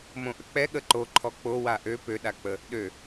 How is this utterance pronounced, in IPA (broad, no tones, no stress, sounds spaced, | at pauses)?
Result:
m õ ʔ ə k͡p ɛ ɠ ə ǃ o ǃʰ ɔ k͡p o w a ʔ ø p ø ɗ a k͡p ə | ɗ ø